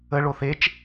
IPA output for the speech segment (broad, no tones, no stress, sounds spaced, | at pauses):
ə ɭ o θ e t͡ʃ